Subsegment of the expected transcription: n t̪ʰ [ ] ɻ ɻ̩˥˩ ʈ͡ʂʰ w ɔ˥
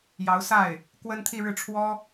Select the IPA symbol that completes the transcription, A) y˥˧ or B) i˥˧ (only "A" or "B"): B